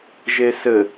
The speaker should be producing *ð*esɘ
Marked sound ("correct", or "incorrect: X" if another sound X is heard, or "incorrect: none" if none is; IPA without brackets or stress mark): incorrect: ʒ